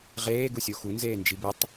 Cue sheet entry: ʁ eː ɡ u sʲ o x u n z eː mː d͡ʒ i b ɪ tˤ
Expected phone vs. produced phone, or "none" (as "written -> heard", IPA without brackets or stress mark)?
mː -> n